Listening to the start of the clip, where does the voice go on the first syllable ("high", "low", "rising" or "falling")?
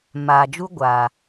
low